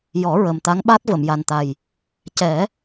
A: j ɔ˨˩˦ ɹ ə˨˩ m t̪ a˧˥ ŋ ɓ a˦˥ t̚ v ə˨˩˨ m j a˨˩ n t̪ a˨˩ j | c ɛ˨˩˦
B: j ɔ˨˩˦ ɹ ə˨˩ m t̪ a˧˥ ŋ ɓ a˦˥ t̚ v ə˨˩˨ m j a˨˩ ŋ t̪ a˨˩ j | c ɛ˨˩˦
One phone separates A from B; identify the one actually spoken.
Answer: A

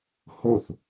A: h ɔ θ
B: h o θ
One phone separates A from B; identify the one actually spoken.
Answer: B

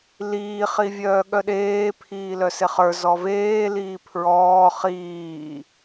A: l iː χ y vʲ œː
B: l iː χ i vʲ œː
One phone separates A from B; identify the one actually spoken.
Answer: B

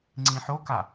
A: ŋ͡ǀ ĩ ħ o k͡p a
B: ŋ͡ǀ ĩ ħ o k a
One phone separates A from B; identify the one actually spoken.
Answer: B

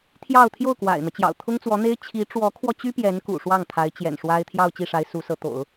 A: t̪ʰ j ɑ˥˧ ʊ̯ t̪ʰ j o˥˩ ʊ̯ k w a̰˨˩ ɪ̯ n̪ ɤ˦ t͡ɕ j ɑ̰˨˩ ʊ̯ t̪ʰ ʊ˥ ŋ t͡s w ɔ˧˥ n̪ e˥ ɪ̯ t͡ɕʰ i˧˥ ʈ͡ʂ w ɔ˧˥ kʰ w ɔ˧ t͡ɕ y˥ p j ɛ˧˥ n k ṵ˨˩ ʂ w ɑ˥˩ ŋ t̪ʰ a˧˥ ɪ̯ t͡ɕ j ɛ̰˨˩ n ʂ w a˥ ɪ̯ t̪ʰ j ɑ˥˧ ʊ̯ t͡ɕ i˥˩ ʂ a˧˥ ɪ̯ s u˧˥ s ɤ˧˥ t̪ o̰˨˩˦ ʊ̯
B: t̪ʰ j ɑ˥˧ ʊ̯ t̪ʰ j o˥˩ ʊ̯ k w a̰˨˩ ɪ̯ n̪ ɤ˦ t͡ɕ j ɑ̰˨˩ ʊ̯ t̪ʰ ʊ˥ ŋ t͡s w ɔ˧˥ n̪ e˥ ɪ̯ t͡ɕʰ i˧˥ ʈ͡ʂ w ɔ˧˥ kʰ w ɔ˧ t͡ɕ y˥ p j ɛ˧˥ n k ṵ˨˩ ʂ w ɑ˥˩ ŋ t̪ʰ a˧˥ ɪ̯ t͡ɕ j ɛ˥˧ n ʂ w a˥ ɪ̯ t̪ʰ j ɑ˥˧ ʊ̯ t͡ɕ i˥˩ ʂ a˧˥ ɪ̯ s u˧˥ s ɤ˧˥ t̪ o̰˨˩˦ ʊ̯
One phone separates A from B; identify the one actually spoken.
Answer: A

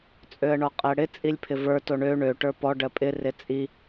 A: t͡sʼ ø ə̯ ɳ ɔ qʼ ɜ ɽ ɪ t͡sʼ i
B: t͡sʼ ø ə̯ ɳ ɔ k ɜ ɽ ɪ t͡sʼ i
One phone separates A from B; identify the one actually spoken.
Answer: A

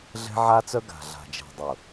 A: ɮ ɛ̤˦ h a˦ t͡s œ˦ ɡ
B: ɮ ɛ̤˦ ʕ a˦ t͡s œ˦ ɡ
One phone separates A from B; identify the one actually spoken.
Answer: B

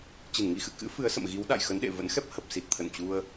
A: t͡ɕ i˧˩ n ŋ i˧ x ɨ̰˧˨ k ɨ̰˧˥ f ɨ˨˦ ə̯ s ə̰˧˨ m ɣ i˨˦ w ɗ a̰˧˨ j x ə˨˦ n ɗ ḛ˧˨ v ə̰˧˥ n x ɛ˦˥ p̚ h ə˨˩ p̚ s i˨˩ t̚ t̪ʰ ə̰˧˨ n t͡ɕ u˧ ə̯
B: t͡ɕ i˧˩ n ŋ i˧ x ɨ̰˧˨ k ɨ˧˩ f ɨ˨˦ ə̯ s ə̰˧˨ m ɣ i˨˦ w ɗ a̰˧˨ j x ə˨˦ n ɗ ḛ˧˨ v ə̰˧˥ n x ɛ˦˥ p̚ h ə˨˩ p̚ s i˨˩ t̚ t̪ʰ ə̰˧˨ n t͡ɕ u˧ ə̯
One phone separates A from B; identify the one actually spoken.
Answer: A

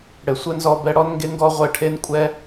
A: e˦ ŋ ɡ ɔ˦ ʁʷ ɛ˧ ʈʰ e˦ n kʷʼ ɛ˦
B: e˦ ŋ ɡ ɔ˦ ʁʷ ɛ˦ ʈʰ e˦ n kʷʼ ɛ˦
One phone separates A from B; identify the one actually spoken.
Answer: A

